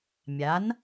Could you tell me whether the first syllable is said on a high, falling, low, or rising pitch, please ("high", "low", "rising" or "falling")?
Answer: rising